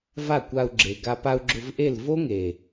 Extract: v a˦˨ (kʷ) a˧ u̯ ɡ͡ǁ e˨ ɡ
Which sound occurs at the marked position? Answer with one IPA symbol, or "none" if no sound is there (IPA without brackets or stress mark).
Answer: kʷ